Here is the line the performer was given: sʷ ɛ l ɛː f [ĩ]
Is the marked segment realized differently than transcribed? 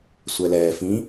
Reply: no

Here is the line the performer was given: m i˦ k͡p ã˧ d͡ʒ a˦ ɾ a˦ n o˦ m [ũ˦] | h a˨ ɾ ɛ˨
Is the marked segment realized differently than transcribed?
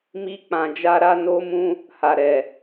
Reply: no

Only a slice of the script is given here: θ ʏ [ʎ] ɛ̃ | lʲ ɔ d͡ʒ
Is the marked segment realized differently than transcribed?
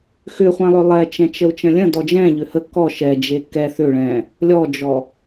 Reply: yes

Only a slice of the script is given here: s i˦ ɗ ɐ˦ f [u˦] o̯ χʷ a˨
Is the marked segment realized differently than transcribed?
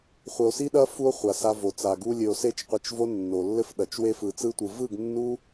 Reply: no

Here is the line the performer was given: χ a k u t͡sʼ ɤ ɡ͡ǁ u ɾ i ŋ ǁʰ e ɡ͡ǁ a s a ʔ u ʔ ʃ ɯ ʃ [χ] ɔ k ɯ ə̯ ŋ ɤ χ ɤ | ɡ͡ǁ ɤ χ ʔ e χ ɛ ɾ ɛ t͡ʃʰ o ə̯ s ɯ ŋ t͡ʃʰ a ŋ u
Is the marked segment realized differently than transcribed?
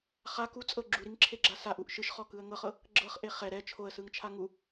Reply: no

